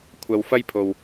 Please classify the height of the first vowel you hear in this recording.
low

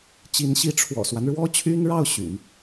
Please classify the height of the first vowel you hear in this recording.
high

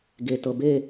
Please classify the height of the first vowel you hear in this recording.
mid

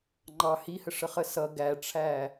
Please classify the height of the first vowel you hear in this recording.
low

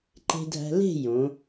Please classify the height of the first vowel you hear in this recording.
mid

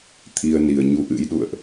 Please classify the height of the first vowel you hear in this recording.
high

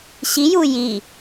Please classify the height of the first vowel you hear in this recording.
high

